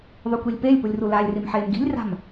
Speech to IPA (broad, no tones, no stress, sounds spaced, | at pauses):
ðˤ ø kʷ i lʲ p e lʲ p u lʲ r u l a lʲ r i m ħ eː m ɡ i̤ lʲ r a̤ m